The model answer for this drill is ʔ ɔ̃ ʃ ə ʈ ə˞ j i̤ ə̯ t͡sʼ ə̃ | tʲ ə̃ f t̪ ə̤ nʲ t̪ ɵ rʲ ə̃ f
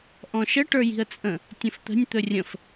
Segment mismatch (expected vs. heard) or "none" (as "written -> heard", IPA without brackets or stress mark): none